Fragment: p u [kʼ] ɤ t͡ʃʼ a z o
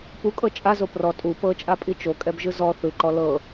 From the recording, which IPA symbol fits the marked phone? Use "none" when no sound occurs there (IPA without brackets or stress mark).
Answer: kʼ